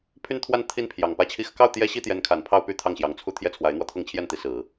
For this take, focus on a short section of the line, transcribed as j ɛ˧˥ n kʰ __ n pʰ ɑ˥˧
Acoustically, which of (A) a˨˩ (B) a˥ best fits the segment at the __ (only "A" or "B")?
A